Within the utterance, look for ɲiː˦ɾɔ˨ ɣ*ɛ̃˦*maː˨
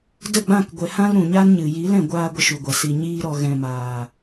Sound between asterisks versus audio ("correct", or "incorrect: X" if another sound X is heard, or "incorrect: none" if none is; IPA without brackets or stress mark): incorrect: ɛ̃˨